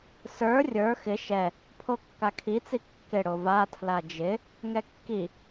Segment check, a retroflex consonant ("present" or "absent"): present